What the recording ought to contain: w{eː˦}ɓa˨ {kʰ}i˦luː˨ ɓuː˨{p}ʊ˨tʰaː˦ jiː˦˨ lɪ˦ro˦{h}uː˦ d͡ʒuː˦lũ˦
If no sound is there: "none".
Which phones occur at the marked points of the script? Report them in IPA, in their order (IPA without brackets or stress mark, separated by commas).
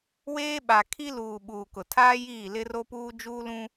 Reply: eː˦, kʰ, k, p